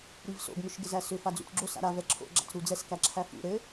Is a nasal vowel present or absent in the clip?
absent